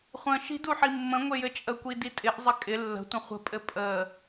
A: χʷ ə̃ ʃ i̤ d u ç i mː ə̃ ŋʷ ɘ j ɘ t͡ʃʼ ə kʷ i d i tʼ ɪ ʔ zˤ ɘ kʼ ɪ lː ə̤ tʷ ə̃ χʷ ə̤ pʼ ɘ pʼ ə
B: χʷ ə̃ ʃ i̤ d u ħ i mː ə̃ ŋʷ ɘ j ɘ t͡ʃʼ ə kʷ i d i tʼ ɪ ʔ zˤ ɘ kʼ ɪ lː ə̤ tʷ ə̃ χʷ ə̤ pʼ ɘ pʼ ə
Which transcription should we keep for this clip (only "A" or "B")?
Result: B